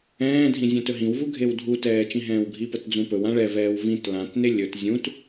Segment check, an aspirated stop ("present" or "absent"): absent